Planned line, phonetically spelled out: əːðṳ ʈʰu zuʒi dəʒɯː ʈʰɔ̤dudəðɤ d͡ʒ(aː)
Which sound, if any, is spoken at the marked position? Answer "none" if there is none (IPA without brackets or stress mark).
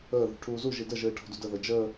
əː